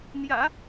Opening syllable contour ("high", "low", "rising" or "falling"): low